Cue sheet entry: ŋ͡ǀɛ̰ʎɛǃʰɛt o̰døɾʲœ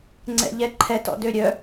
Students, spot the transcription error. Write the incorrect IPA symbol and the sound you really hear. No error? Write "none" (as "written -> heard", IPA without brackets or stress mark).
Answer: o̰ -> ɔ̰